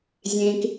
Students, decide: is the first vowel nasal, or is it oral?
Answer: nasal